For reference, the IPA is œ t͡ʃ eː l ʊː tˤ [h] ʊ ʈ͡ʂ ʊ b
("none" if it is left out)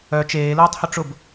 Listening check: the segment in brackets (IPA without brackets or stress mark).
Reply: h